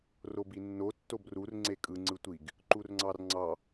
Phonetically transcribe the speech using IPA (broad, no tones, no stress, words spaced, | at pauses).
robinːo tːobrur ŋ͡ǀekʼɯ ŋ͡ǀɯtʷiɡ | ǃurŋ͡ǀɑrŋ͡ǀɑ